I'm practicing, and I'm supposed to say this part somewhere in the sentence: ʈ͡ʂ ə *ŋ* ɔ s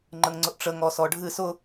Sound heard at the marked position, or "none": ŋ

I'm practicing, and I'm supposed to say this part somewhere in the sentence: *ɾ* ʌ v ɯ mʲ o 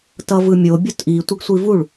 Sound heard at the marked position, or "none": t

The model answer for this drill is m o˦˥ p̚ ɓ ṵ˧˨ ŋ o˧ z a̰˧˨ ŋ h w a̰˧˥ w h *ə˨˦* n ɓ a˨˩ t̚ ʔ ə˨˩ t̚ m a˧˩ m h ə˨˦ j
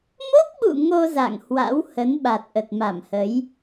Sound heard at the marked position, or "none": ə˨˦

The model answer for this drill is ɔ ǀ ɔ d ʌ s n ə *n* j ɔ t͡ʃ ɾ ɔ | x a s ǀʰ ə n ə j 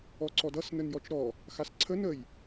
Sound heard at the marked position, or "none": n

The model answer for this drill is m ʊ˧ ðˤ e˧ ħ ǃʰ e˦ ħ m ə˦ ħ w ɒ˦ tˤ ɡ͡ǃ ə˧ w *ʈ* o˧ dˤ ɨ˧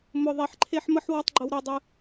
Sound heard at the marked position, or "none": ɾ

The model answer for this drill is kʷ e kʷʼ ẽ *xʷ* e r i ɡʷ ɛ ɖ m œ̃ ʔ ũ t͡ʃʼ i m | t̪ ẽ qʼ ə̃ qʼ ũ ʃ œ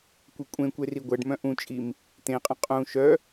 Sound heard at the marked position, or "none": kʷ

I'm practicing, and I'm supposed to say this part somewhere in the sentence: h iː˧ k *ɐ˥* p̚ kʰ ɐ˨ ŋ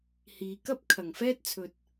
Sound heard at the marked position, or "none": ɐ˥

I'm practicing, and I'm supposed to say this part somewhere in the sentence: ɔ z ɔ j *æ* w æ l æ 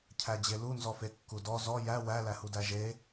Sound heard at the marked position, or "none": æ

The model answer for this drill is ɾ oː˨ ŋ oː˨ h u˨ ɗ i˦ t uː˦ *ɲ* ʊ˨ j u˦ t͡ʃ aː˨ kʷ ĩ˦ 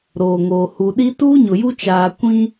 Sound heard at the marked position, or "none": ɲ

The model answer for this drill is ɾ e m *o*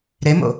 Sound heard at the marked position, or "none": o̰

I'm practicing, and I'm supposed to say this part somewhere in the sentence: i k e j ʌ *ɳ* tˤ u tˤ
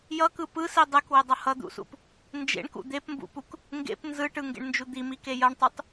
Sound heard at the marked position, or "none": ɳ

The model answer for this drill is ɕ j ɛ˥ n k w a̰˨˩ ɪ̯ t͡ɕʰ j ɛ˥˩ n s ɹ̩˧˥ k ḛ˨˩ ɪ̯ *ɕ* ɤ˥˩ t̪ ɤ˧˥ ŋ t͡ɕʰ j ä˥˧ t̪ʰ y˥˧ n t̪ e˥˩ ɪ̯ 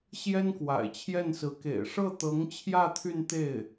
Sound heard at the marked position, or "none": ʂ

